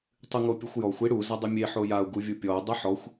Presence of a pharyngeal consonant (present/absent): present